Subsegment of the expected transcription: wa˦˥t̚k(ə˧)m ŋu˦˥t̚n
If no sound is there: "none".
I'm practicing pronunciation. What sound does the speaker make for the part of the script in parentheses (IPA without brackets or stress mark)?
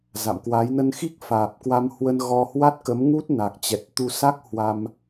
ə˨˦